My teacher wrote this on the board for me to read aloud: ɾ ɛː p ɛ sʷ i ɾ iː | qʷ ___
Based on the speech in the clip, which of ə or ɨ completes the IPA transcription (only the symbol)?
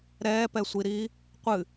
ɨ